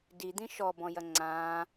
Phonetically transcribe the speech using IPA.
d i d̪ ĩ ʃ ɔ b ɔ̃ j ɐ ŋ͡ǀ ãː

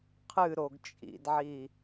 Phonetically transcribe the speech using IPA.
qʰ ɨ ɾ o ɡ t͡ʃʼ ḭ d ʕ i

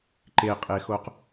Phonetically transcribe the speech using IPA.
ǃ e qʼ e x o q

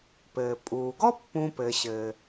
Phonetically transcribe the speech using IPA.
p ɘː˩ pʼ uː˩ ɡ ɔ˥ pː ũ˧ p ɘ˩ ɕ ɘ˩

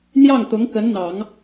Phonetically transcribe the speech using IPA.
n̪ j ɑ˥˩ ŋ t̪ ʊ˧˥ ŋ k ə˧˥ n n̪ ɑ˨˩˦ ŋ

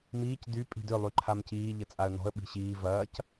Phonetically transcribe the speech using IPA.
m iː c d y pʼ i̤ d ʏ lˠ y ǃʰ a m c iː ʎ ə t͡sʼ a ə̯ n ɔ̤ ə̯ ɓ i̤ ɕ iː v ɐː c

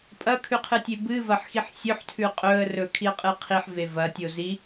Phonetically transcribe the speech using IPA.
pʼ ɐ kʰ ʉ qʰ ɨ tʲ e b ɨ v ɐ ħ x i ħ sʲ ɵ ħ tʰ ʉ qʼ ɵ ə̯ r ɵ kʰ i ə̯ qʼ ɨ qʰ i ħ v e v ɐ tʲ o z i

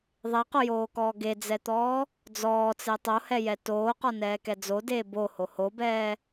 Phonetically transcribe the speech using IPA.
ðˤ e q o j oː k ɔː ɡ e d͡z ɛ t̪ ɔː | d͡z ɔː t͡s e tˤ o h ɛ j ɛ t oː q ɔ n ɛː k ɛ d͡z o d eː b o h o h o b ɛː

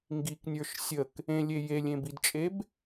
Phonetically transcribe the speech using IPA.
ŋ ɡ i k nʲ ə˞ ʃ sʲ ə k | ẽ lʲ e j e lʲ ẽ b i d t͡ʃʼ e b

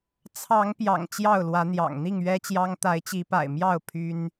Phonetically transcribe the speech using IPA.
t͡sʰ ɑ˨˦ ŋ p j ɑ̰˨˩ ŋ t͡ɕ j ɑ˥˨ ʊ̯ l w ä˨˦ n̪ j ɑ̰˨˩ ŋ n̪ i˥˨ ŋ ɥ ɛ˦ t͡ɕ j ɑ˦ ŋ t̪ a˨˦ ɪ̯ t͡ɕ i˨˦ p a̰˨˩ ɪ̯ m j ɑ˥˨ ʊ̯ pʰ y˦ n

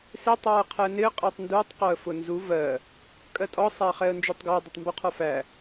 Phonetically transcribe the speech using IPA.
s ɪ tˤ w ɜ qʰ æ n ɪ ə̯ qʼ ɛ tˤ n d u tˤ q ɔ ə̯ f ʊ n z u v ɜ | kʼ ɜ tʼ ɔ sˤ æ χ ɛ ə̯ n d͡ʒ ɜ tˤ ɡ æ dˤ u tˤ m b u qʰ ɔ f æ

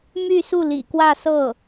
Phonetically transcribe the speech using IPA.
m y˥˧ s u˥˩ l ḭ˨˩ k w ä˥˧ s ɤ˥˩

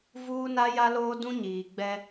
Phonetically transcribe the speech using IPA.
v uː˦ n a˦ j a˦ l oː˦ d ũ˦ ɲ iː˨ ɡ͡b ɛ˦

